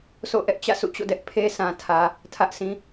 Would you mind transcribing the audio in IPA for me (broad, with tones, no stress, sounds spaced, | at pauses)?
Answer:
sʰ o̰˦˨ ʔ ɛ˦ ʔ t͡ɕ ä̰˦˨ sʰ ṵ˦˨ t͡ɕ o̰˦˨ d ɛ˦ ʔ pʰ e˦ sʰ ã˨ tʰ ä˨ | tʰ ä˦ ʔ s ĩ˦